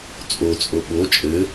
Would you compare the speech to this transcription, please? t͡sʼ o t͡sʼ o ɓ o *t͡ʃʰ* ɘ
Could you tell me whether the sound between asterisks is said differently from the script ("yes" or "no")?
yes